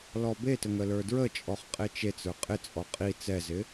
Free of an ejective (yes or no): no